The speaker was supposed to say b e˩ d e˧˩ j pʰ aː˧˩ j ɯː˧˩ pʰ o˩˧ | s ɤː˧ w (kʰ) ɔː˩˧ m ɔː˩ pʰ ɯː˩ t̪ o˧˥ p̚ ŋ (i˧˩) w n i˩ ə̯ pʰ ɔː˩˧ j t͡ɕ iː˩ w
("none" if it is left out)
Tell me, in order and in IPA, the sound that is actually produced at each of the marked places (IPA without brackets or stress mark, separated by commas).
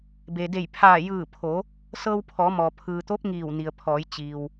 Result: pʰ, iː˧˩